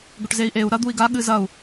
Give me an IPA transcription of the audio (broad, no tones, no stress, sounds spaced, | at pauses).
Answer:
ɡ ɵ ʈ z e i̯ ʔ e u̯ ɾ ɐ d̪ u i̯ ɡ a ɠ ɨ z ɐ u̯